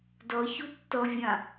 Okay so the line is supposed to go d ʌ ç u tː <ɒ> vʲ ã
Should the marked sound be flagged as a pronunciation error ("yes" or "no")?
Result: yes